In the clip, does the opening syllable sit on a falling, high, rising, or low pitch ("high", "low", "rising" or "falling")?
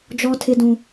high